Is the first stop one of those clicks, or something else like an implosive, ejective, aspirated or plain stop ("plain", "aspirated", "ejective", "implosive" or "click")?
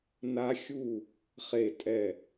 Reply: ejective